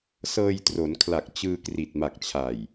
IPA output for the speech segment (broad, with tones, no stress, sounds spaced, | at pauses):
s ɤː˧ j t r o˩˦ n kʰ l a˨˩ k̚ t͡ɕ ɯː˧ k r i˨˩ t̚ m a˨˩ k̚ t͡ɕʰ a˨˩ j